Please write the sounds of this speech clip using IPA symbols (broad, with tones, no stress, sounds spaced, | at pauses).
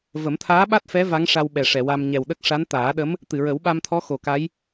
v ə˨˩˦ m t̪ʰ aː˧˥ ɓ a˦˥ t̚ f ɛ˧˥ v a˧˥ ŋ ʂ a˧ w ɓ ɛ˨˩ ʂ ɛ˨˩˨ w a˧ m ɲ ɛ˨˩ w ɗ ə˦˥ k̚ ʂ a˧˥ n t̪ aː˨˩˦ ɗ ə˧˥ m | t̪ ɨ˨˩˨ ɹ ə˨˩˦ w ɓ a˧ m t̪ʰ ɔ˧˥ x o˨˩ k a˧˥ j